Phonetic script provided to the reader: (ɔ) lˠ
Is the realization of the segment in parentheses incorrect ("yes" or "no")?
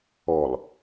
no